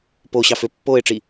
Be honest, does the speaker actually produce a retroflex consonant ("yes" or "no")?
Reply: yes